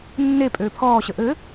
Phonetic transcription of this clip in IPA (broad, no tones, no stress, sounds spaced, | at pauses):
nː e pʼ øː pʰ ɔː ɕ ə ʔ ɘ